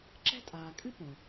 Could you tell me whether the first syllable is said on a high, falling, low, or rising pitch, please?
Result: high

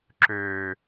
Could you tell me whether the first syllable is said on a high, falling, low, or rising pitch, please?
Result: low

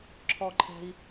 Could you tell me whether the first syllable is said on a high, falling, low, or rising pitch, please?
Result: high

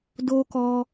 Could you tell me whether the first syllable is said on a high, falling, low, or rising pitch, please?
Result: high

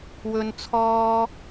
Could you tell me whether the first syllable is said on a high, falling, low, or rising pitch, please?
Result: low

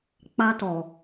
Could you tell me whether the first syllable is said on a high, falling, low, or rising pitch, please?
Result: high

